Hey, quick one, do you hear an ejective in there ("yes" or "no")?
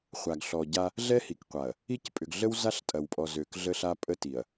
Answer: yes